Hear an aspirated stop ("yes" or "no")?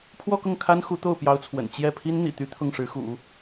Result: yes